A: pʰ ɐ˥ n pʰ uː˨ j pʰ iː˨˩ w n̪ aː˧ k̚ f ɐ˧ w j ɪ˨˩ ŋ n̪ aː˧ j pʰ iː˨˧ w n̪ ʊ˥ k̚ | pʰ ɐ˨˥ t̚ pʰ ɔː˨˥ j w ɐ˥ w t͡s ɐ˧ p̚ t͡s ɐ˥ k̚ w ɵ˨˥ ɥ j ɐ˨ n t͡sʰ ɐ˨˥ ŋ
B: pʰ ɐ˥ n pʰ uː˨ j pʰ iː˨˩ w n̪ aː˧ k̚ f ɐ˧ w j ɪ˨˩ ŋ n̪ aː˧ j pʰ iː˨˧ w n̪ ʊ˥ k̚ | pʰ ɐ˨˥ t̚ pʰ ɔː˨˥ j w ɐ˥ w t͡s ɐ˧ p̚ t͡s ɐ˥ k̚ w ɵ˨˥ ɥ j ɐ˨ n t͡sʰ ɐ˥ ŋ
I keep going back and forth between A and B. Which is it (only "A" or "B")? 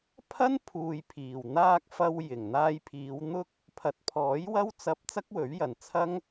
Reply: B